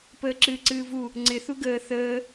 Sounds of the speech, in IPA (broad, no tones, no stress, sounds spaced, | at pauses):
p əː ǁ ɨː ǀ ɨː v u | ŋ͡ǀ ɪ θ u ɡ əː θ əː